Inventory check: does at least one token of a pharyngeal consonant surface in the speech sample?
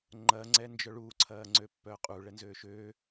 no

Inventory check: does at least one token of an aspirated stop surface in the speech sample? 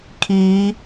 yes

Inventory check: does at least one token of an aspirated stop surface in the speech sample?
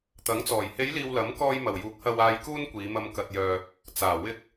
no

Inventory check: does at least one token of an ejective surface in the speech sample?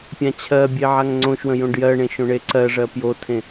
no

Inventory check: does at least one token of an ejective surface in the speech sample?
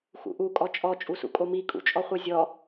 yes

